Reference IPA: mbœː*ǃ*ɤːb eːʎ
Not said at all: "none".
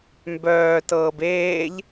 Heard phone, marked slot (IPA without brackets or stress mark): t